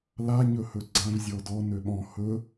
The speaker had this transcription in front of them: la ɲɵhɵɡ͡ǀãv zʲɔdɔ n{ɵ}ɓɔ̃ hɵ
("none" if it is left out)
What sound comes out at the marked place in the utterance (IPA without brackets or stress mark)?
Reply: ø